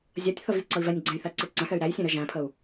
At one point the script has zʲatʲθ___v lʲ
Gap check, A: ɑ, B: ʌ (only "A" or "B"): B